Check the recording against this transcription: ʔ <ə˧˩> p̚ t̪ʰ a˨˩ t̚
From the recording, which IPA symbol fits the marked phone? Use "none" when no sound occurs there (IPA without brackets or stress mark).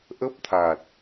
ə˦˥